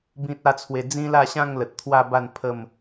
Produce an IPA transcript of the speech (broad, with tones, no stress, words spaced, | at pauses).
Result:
bĩ˦t̚a˦t͡sʰwe˧ d͡zĩ˦la˥˧ɕã˥˧ŋ lə˨t̚t̪ʰwa˥˧ba˥˧n pʰə˥˧m